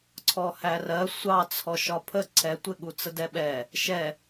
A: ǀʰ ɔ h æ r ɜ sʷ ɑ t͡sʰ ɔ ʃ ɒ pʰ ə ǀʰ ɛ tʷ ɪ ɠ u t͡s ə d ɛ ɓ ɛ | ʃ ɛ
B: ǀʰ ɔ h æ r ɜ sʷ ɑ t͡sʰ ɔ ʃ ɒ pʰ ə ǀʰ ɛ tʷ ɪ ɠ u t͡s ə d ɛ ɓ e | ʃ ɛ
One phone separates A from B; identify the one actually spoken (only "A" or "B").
A